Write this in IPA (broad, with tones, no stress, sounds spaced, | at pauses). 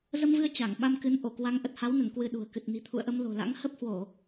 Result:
z ə˧ m v ɨ˧ ə̯ t͡ɕ a˧˩ ŋ ɓ a˧ m k ɨ˨˦ n ʔ o˧˩ k w a˨˦ ŋ ʔ ə˨˩ t̚ h a˨˦ w n ə˧˩ n k w ɨ˧ ɗ ṳ˨˩ ə̯ k ɨ˨˩ t̚ n i̤˨˩ t̪ʰ ṵ˧˨ ə̯ ʔ ə˧ m l o̤˨˩ l a̰˧˥ ŋ h ə˦˥ p̚ h w o˧˩˨